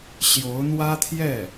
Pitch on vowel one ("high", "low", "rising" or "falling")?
rising